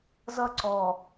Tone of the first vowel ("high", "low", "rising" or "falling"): falling